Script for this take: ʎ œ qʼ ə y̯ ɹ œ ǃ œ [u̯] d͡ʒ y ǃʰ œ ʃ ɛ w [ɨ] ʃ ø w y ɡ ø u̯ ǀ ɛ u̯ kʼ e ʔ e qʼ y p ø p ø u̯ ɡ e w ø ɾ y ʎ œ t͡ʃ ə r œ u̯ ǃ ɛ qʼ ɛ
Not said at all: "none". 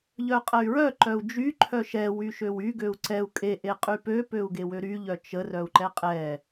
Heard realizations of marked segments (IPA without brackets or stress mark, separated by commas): u̯, y